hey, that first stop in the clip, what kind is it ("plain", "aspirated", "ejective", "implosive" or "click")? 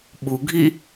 implosive